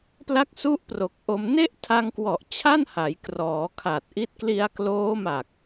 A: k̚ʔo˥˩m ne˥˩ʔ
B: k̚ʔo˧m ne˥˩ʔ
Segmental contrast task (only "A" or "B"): B